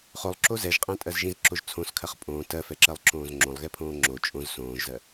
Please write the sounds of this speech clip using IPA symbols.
χ o lˠ ǁ o z ɛ ʒ qʼ ɛ̃ tʼ ɜ z ʒ ĩ z ǁ o ʒ t͡sʰ õ s kʰ ɜ χ pʼ õː t ɜ f ɛ ǁ ɜ lˠ ǁ õː z ŋ͡ǁ õ lˠ ɣ ɛ pʰ õː ŋ͡ǁ o t͡ʃʼ õ z s õː ʒ z ɜ

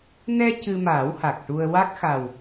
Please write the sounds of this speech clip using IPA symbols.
n ɛ˧ c ɨ˧ m aː˨˩˦ w h a˨˩ k̚ ʈ u˧ ə̯ w a˦˥ k̚ x a˨˩ w

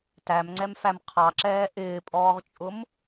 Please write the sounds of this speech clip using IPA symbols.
t æ m ŋ͡ǀ ɛ m f æ m qʰ ɑ ǁ ɛː ʔ ɪː pʼ ɔː ʁ t͡ʃʼ ʊ m

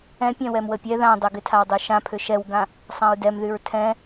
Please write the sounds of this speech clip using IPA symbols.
ɛ̃ pʲ ɛ̃ w ɛ m w ə pʲ ɛ ð ã dˤ e ɡ ɪ tʰ a w dˤ y ʃ ã pʰ ʏ ʃ ɛ w ɡ ã | sˤ ã ɹ d ɛ m ð y ɹ tʰ ɛ̃

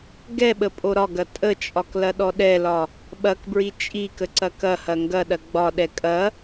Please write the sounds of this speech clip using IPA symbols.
ɡ ɛ ɓ ə pʼ o ɾ ɒ ɡ ɐ tʼ ə t͡ʃʼ ɒ k l ɐ ɗ ɔ ɗ ɛ l ɒ | ɓ ɐ k b ɹ i t͡ʃʼ i k ə ǀ ɐ k ɐ h ɐ ŋ ɡ ɐ ɗ ɐ ɡ͡b ɒ ɗ ɛ kʼ ɐ

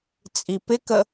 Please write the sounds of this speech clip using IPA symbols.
t͡sʼ i p ɪ k ə

